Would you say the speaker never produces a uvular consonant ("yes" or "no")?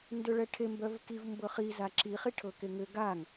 no